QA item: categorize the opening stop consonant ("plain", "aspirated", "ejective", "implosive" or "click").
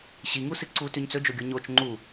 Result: click